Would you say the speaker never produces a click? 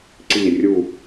no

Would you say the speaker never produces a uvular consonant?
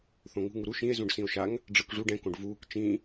yes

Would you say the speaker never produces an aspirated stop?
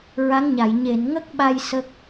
yes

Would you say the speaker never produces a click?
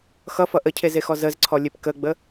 no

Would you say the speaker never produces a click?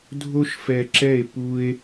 no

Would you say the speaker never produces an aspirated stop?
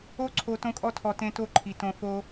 no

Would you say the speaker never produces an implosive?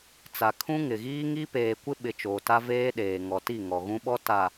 no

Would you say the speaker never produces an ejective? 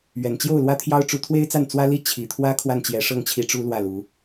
yes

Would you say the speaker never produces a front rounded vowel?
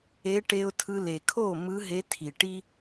yes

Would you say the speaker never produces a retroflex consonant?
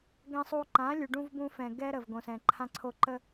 no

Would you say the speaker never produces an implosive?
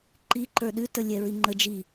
no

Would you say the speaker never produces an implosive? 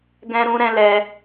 yes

